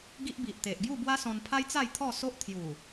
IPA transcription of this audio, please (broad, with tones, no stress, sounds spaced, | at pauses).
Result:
ɡ i˦ ʔ b i˨ ʔ t̪ e˨ ʔ ɡ j u˥˧ b w a˦ s ɔ̃˧ n pʰ a˦ j t͡s a˥˧ j t̪ʰ ɔ˥˧ s o˦ ʔ t̪ʰ j u˨˩